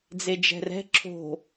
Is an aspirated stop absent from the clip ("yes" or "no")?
no